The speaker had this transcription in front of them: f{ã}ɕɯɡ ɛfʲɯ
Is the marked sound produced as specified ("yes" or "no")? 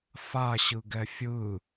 no